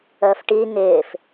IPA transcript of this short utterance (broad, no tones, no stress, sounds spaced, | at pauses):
əː f ʈ i ŋ ɪː f